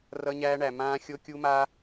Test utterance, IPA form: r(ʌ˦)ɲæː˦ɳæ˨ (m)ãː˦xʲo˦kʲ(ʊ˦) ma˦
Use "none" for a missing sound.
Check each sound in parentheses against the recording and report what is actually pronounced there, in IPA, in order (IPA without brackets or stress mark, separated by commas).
ʌ˦, m, u˦